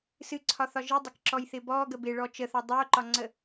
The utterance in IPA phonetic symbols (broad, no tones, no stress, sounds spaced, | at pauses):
s ɨ ǀʰ ɒ θ ɒ ʒ ɨ dˤ ɪ k ǁ ɔ j θ ɪ b ɔ ɡ ə b ɪ ɭ ɔ t͡ʃ ə θ ɒ dˤ o ǃ ɒ ŋ͡ǀ ə